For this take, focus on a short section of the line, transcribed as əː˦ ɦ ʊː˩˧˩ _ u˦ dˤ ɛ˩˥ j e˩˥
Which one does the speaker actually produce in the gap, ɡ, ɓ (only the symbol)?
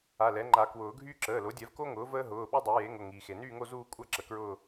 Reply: ɓ